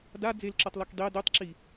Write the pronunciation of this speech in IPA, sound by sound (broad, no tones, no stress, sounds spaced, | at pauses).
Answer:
d a d͡z e l ǁ œ tˤ l ɔ k dˤ e d ø tˤ ǁ i